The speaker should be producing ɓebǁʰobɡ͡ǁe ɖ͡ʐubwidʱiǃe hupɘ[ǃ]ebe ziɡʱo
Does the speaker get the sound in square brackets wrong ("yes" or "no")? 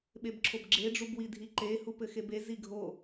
yes